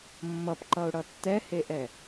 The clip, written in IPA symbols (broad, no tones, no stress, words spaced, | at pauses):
mːʌpǃʌʊ̯ɽʌ tːɛheʔɛ